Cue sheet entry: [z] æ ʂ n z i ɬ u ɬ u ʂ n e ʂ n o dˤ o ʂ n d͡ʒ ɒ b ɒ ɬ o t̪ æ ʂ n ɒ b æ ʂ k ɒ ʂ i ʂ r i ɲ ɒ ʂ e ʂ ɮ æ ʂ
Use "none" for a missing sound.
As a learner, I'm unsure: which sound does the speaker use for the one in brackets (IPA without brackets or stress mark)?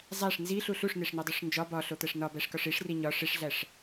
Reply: zˤ